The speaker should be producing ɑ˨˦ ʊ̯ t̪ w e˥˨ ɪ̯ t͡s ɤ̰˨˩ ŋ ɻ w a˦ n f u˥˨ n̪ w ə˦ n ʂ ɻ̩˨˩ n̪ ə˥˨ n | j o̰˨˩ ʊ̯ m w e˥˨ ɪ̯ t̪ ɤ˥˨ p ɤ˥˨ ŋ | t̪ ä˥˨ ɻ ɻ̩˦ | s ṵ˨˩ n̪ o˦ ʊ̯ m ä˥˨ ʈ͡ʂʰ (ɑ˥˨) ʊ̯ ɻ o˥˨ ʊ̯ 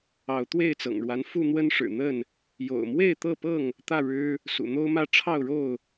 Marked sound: correct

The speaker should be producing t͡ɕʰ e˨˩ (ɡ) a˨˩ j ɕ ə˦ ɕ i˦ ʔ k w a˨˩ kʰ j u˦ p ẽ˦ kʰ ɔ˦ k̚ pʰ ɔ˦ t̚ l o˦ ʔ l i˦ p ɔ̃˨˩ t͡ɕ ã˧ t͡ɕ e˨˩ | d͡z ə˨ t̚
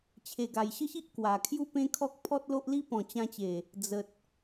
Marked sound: correct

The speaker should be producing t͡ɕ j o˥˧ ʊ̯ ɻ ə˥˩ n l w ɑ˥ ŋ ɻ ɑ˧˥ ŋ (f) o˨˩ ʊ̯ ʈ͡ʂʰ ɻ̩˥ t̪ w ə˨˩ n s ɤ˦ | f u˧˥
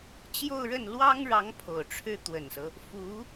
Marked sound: incorrect: pʰ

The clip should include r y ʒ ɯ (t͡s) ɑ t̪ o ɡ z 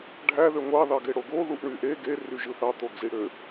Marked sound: incorrect: θ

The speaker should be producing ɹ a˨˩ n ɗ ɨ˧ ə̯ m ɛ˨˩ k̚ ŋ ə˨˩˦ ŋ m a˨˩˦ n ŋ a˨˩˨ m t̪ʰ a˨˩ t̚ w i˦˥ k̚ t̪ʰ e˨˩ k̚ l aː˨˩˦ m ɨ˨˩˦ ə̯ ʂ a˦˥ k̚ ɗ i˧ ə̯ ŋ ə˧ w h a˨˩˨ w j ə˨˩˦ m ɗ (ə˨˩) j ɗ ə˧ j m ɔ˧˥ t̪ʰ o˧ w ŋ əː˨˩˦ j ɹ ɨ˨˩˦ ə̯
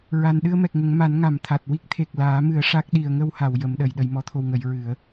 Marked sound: incorrect: ə˨˩˨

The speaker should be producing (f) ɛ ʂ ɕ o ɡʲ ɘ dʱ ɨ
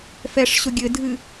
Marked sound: correct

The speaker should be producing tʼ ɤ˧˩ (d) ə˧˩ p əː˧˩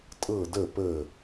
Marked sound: correct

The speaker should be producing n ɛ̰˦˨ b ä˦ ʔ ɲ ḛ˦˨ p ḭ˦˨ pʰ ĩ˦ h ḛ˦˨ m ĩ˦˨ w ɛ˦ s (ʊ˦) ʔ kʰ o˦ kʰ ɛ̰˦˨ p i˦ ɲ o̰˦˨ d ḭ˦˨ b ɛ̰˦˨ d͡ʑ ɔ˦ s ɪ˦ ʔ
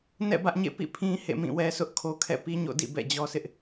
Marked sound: correct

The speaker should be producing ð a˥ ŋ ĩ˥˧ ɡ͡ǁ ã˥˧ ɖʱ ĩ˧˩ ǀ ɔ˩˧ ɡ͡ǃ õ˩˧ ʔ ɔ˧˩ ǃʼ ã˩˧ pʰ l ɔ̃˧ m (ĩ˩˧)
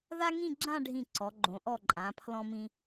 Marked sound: incorrect: ĩ˧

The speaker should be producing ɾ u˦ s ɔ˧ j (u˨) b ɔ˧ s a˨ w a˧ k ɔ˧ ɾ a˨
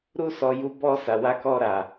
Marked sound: incorrect: u˧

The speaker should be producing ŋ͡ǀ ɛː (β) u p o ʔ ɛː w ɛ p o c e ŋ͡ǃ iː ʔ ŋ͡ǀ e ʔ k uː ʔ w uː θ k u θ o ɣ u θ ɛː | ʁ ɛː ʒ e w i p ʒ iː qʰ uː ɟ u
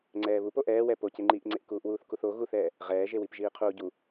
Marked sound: correct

